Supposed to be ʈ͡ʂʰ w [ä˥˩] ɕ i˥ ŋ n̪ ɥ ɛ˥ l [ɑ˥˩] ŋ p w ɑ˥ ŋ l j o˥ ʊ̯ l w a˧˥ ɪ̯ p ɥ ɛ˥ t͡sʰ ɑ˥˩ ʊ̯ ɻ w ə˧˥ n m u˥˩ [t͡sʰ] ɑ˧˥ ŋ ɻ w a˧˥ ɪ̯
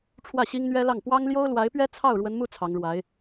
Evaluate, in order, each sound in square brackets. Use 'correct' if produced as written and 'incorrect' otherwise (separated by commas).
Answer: correct, correct, correct